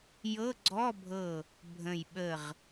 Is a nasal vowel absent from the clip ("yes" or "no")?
no